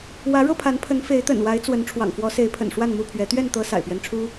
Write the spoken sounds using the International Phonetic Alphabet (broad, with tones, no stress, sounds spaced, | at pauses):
w ä˨˦ ɻ ɤ˥˨ pʰ a˨˦ n pʰ ə˨˦ n f e˨˦ ɪ̯ t̪ ə̰˨˩ n w a˨˦ ɪ̯ t͡s w ə˨˦ n ʈ͡ʂʰ w ɑ̰˨˩ ŋ f w ɔ˨˦ s e˨˦ ɪ̯ pʰ ə̰˨˩ n ʂ w a˥˨ n m u˥˨ pʰ ɥ ɛ˨˦ t̪ ɥ ɛ˥˨ n t̪ ɤ˨˦ s a̰˨˩ ɪ̯ p ɥ ɛ˦ n ʈ͡ʂʰ u˦